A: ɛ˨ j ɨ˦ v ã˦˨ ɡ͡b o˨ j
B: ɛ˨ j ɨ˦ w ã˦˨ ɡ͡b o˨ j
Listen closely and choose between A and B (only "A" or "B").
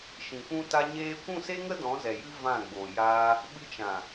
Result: A